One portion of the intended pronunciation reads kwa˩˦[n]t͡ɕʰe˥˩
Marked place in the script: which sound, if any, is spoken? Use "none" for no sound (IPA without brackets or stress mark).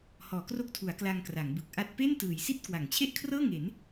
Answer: ŋ